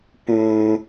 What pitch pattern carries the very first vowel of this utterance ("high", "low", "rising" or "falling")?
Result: low